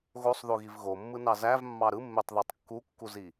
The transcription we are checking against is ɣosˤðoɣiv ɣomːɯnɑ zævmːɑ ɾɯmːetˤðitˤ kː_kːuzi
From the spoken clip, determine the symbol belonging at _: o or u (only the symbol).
u